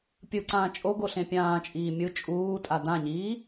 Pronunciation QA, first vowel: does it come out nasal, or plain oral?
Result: oral